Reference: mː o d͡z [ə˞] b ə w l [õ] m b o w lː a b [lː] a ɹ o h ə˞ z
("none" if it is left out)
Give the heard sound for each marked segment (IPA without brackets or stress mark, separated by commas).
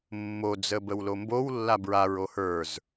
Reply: ə, o, ɹ